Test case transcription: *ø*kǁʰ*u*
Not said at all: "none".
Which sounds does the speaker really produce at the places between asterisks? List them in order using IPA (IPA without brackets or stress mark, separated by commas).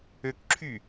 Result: ø, y